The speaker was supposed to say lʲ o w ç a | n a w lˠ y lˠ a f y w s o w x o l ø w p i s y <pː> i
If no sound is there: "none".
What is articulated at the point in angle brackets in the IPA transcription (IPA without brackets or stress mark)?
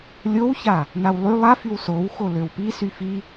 f